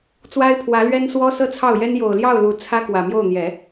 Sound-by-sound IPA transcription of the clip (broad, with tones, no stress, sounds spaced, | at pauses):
t͡s w a˥ ɪ̯ pʰ w ä˧˥ l ɥ ɛ˥ n s w ɔ˥ s ɤ˥ t͡sʰ ɑ˥˩ ʊ̯ j ɛ˥ n j o˨˩ ʊ̯ l j ɑ˥˩ ʊ̯ l u˨˩ t͡sʰ ä˥ k w ä˨˩ m j o˥˩ ʊ̯ n̪ j ɛ˨˩˦